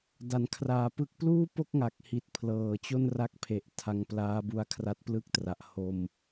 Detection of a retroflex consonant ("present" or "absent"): absent